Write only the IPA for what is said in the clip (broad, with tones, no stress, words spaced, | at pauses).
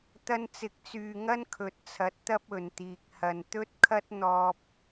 t̪ɐ˧nt͡sɪ˨˥k̚t͡syː˨ ŋɐ˥nkʰɵ˨˥t̚t͡sʰɐ˨˥t̚ t̪ɐ˧p̚ ɵ˨nt̪iː˨k̚hɐ˨n t̪ɵ˥t̚kʰɐ˥t̚ n̪ɔː˧p̚